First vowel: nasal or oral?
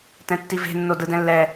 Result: nasal